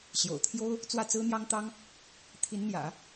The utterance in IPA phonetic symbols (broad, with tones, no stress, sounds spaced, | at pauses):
ɕ j o̰˨˩ ʊ̯ t̪ʰ j o˥ ʊ̯ | t͡s w ä˥˩ t͡s ɹ̩˥ n̪ j ɑ˥ ŋ t̪ ɑ˥ ŋ | t̪ʰ i˧˥ n n̪ j ä̰˨˩˦